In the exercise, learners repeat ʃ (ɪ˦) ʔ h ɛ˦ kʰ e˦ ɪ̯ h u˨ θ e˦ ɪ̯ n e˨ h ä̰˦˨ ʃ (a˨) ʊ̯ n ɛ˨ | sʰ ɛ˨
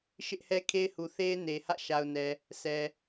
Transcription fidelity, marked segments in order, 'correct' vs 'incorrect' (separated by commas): correct, correct